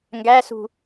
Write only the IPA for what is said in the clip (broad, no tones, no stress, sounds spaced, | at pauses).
ŋ ɡ æ s ṳ